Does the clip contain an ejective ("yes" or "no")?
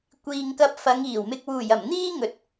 no